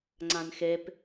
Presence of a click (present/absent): present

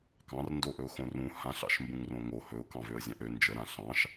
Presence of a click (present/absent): absent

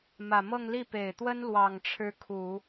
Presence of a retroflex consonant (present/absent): present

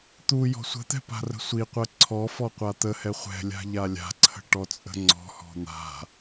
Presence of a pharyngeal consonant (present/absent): absent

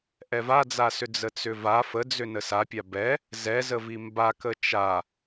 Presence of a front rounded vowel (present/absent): present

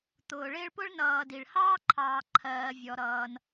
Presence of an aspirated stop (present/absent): present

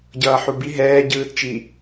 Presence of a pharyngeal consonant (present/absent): present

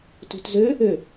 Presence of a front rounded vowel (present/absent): present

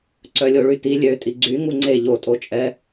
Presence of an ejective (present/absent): present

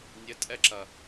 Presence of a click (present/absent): present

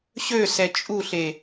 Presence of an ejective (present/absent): present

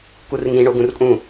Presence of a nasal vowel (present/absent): present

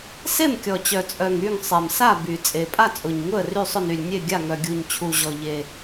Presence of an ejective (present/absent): present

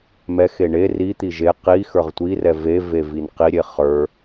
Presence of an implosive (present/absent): absent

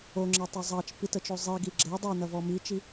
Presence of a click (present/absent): present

